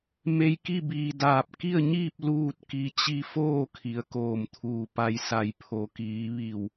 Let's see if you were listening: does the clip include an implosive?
no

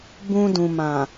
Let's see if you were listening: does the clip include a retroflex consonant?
no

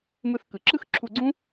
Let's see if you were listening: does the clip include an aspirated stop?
yes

